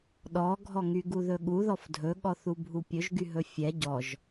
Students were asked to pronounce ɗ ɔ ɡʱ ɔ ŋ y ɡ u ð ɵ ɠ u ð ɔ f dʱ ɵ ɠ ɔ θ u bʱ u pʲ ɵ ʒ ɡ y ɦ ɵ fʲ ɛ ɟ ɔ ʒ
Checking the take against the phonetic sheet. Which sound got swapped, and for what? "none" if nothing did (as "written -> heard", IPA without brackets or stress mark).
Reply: none